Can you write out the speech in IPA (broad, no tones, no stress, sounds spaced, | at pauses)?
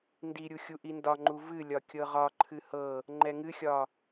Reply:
n d i ɾʲ u xʲ u ʔ i n d ɒ ŋ͡ǃ u v ɨ lʲ ɒ kʲ ɤ ʁ ɒ ǃʰ ɨ h ɤ | ŋ͡ǃ ɛ ŋ ɨ xʲ ɒ